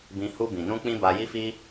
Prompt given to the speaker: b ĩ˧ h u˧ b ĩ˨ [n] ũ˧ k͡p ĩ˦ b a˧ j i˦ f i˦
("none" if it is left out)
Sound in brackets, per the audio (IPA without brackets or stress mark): n